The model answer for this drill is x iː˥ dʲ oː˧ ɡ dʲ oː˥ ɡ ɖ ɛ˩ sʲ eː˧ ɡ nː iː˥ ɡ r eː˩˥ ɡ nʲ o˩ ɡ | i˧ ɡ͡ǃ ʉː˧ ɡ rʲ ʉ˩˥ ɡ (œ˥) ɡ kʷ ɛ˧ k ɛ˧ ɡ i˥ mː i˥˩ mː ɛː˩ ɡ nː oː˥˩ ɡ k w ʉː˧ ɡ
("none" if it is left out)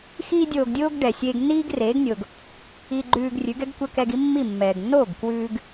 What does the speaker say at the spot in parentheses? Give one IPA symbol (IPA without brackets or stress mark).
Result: ɛ˥